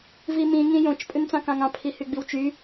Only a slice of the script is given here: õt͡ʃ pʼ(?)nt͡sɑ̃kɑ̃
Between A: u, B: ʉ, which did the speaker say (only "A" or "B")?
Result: B